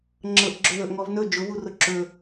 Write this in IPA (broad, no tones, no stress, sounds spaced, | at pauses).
ŋ͡ǁ ɤ ʔ ɡ͡ǁ ɵ ð ɵ ʔ ŋ ɔ v n ɵ d͡ʒ ʊ v u r ʊ ǁ ɵ